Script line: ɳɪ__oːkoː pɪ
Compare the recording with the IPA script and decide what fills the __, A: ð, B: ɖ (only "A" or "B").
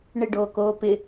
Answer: B